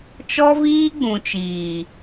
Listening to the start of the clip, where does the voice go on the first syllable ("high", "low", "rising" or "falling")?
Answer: high